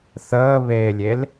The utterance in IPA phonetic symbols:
θəːβeːlʲel

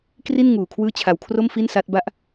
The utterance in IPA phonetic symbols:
kri˥˩n ŋuː˨˩kʰwɯː˦˥ t͡ɕʰa˧wkʰro˥˩m fi˥˩nsa˦˥t̚ba˥˩ʔ

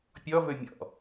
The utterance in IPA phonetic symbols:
pʲɔvɵ mʲɔ̰

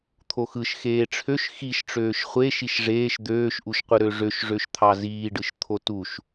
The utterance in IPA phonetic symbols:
t̪ʰoxɯʃ xeːʈ͡ʂʰøʃ xiʃʈ͡ʂøːʃ χʷe ʃiʃʐeːʃ d̪øːʃʔuʃqʷɯ ɾøʐøʃʐøʃ t̪ʰɑziːɖɯʃ t̪ʰotuʃ

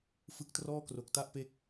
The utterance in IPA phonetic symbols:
fɯ˦˥k̚trɔː˥˩kro˨˩k̚ta˥˩ʔ pe˦˥k̚

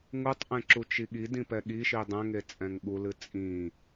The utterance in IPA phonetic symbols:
ŋutˤʔɛ̃ǁut͡ʃi ɠidĩpɛ ɠiʃi dˤɛ̃ŋet͡sʼɛ̃ŋ ɠulɨ t͡sʼĩ

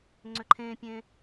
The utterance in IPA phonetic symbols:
ŋ͡ǀʏǃʰẽpʲẽ

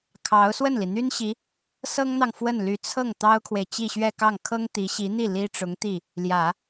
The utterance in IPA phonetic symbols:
kʰɑ˧˥ʊ̯ swə˥˩nli˩n̪y˥nɕi˧˥ | sɤ˥ŋn̪ɑ˨ŋ fwə˥˩nly˧˥ t͡sʰɤ˥˩ŋ t̪ɑ˥ʊ̯kʰwe˨ɪ̯ t͡ɕi˥˧ɕɥɛ˥˧kɑ˥˩ŋ kʰɤ˥ŋt̪i˧˥ɕi˧˥n̪i˥˩ li˥ʈ͡ʂʊ˧˥ŋt̪i˥˩ | ljä˨˩˦

